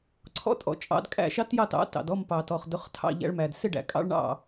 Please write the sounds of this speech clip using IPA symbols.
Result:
ǀʰ ɔ̰˥ tʼ ɔ̰˧ t͡ʃʼ ɑ̰˧ d kʼ æ̰˥˩ ʃ ɑ˥ t j ɑ˥˩ t ɑ̰˩˥ t ɑ̰˩ d ɔ˥˩ m p ɑ˩ t ɔ˩ χ d ʊ˩˥ χ tʰ ɑ̰˥˩ ʎ æ̰˧ ɭ m æ˩ d s ɪ˥˩ ɖ æ̰˧ kʼ ɑ̰˥ ɭ ɳ ɑ̰˥˩

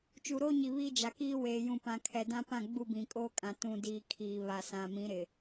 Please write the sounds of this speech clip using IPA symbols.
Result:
t͡ʃ u˨ ɾ oː˦ ɲ i˨ β iː˦ d͡ʒ a˨ k iː˦ w eː˨ j ũ˨ p ã˨ kʰ ɛ˨ d ã˦ p ã˦˨ ɡ͡b u˦˨ b ĩ˨ kʼ oː˦ kʼ ã˨ t ũ˨ d iː˨ kʰ iː˨ β a˨ s ã˨ m ĩ˨˦ ɾ ɪ˨

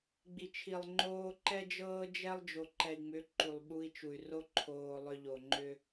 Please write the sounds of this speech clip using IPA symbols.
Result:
ɡ͡b i˨ t͡ʃʰ i˨ lˠ ŋ͡ǃ oː˦ ǃ ɛ˦ d͡ʒ ɤː˦ d͡ʒ ɛ˦ lˠ d͡ʒ o˨ ǃ ɛ˨ i̯ ŋ͡m ʏ˨˦ ǃ u˨ lˠ ɓ u˦ i̯ t͡ʃ u˨ y̯ r o˦ ǃʰ oː˨ lˠ ʏ˦ ʎ o˨ ŋ͡ǃ ʏ˦

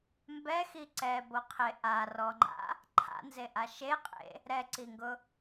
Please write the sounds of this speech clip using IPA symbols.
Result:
m b ɛ x i ǀ ɛ b o qʰ e ʔ a r ɔ ŋ͡ǃ a̰ | ǃʰ a̰ n z e ʔ a ʃ e qʼ ḛ | ɾ ɛ ǀ i ŋ ɡ ʊ

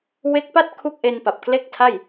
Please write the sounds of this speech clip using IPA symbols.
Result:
w e˦˥ k̚ p a˥˩ t̚ kʰ u˥˩ k̚ ʔ e˧ n p a˨˩ p̚ k l e˥˩ k̚ tʰ a˥˩ j

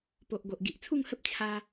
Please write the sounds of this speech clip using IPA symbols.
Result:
p o˨ ʔ ɡ o˨ ʔ ɡ i˨ ʔ t͡sʰ u˥˧ ŋ h ə˦ p̚ t͡ɕʰ a˧

